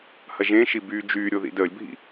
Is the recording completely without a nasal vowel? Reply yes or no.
no